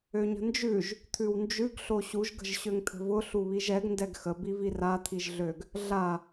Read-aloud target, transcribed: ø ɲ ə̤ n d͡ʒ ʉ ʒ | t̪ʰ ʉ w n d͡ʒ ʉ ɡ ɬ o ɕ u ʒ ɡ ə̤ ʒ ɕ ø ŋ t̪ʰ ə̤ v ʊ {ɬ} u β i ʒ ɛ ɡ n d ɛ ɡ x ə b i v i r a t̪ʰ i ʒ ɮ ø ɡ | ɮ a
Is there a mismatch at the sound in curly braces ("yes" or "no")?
no